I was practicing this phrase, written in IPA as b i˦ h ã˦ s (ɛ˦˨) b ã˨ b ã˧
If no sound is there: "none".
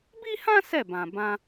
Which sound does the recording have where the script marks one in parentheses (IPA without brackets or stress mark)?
ɛ˦˨